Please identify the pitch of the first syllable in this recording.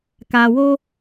low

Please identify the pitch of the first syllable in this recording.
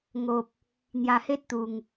low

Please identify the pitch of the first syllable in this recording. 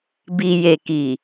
low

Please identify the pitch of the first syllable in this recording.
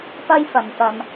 high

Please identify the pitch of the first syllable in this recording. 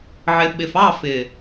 low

